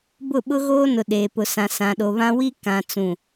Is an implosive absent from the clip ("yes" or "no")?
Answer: no